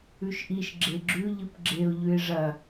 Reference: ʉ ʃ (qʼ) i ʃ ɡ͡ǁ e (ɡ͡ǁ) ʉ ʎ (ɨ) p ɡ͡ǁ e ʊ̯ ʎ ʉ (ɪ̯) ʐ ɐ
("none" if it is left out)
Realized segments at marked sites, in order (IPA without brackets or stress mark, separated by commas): ʔ, ɡ͡ǁ, ɨ, ɪ̯